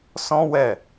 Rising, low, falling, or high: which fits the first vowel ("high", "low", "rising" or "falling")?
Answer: high